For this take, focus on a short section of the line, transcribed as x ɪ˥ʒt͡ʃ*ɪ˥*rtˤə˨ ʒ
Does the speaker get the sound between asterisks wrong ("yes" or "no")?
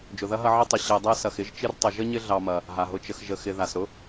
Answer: yes